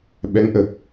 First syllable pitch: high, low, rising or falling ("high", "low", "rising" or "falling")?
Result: rising